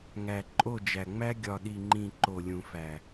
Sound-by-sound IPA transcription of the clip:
ŋ æ˨ ǃʼ o˦˨ d͡ʒ æ˨ ŋ͡m æ˦ ɡʲ ɒ˨ ɗ i˨ ŋ͡ǃ ĩ˨ ǃ o˨ lʲ ũ˨ f æ˨

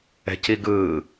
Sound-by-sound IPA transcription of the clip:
ɛ̤ c i ɡ ɯː

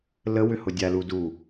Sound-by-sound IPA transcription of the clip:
l ə w ʏ h ʊ dʲ a l u d u

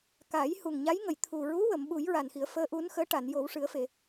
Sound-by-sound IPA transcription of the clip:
k a˨˩˦ j h u˨˩ ŋ ɲ a˧˥ j ŋ ə˨˩˨ j t̪ʰ u˨˩ ɹ u˧˥ w ə˨˩˨ m ɓ u˨˩˦ j ɹ a˨˩ n x i˨˩˦ ə̯ f əː˧˥ ʔ u˧˥ n x əː˧˥ ʈ a˨˩˨ n j o˨˩˦ w ʂ ɨ˨˩˦ ə̯ f e˨˩˨

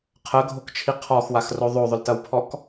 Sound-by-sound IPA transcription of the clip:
qʰ ə ɡʱ o k t͡ʃʰ i qʰ ɔ x w a x r o ðˤ o ðˤ ʏ l t ɐ w pʰ ɔ k

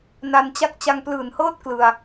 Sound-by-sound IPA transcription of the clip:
n a˧ n t͡ɕ a˥˩ k̚ t͡ɕ a˧ ŋ p l ɯː˨˩ n h ɤː˥˩ t̚ k l ɯ˧ a̯

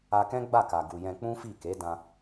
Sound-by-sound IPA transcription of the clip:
a˧ k ɛ̃˦ ɡ͡b a˦˨ k a˨ ɡ u˨ j ɛ̃˧ k͡p ũ˦ f i˦˨ k e˨˦ d ã˧

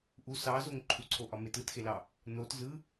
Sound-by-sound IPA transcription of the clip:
ʔ u s ɑ z o ŋ ǃʰ u ǀʰ o ʔ ɒ m e t ɯ t x e l ɑ | n o t z ɯ

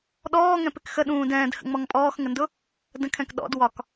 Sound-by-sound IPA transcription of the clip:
ɗ ɔː ŋ ɛ̃ p ɪ k x ə ɗ ũː d ɛ̃ː d h ə̰ ŋ͡m ɔ ŋ pʼ ɔː x ŋ ə n d ʊ | d ə̃ kʰ ɛ̃ k ɗ ɔ̰ d w ɒ k

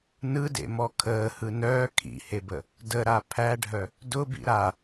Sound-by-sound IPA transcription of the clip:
n ɯ d ḛ m ɔ kʰ əː h ɯ n œː kʰ ḭ h e b ə | d ə ɾ a pʰ æ ɖʱ œ | d ʊ b ḭ ɾ a

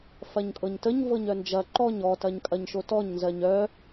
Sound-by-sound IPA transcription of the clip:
f ɐ ɲ kʼ ɤ ɲ t ə ɲ v ɤ ɲ œ n d͡ʒ ɐ ǃ ɔ ɲ ɔ t ɐ ɲ kʼ ɐ ɲ ʃ o t ɔ ɲ n z ɜ ɲ œ

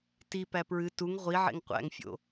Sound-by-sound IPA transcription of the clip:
t i p æ p ɹ ɨ t u ŋ ʁʷ i ʕ ḛ ŋ qʷ æ̰ ŋ fʲ o̰

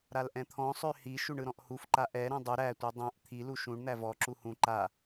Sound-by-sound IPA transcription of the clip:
ɾ a l ʔ ɛ̃ t̪ʰ ɔ̃ sˤ ø h i ʃ u ɳ ɯ ɾ ɔ̃ ʔ h u f ǃ a ʔ ɛ ɾ ɛ̃ dˤ u ɾ æ tʷ ɯ dˤ æ̃ ʔ t̪ʰ i l u ʃ ũ ɳ n̪ æ v ɔ ǁ u h ũ ǃ a

